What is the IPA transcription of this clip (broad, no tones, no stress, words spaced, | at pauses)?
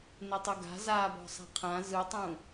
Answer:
nɪtˤɯɡa̤ zabɔ̤ sˤa̤qʰã zɯtˤũ